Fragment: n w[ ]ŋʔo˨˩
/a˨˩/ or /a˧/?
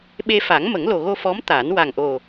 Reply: a˨˩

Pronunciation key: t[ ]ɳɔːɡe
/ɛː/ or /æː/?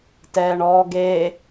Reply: ɛː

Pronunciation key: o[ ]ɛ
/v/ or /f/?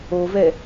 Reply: v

